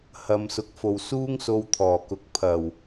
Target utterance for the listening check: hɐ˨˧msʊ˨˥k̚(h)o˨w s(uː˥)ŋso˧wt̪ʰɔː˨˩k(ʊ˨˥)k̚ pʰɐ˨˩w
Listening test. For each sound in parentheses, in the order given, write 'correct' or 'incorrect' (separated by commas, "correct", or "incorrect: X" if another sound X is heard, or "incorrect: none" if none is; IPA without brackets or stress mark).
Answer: incorrect: f, correct, correct